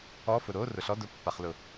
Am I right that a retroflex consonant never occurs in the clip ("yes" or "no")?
yes